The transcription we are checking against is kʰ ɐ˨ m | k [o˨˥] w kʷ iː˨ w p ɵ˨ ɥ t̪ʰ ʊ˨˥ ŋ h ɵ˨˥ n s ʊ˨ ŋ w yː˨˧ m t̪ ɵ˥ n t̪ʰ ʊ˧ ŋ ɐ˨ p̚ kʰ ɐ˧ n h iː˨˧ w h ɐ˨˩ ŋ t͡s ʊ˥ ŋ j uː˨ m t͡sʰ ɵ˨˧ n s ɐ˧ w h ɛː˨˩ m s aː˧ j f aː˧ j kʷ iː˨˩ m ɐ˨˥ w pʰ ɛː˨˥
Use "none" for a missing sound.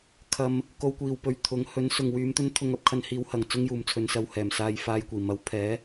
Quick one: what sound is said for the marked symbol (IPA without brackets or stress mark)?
o˧